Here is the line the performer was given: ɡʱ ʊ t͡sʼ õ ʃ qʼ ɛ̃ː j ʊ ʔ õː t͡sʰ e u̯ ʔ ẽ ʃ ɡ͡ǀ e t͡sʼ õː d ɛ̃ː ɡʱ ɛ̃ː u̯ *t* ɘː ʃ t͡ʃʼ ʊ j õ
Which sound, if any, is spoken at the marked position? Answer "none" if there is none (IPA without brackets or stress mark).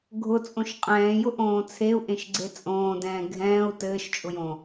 t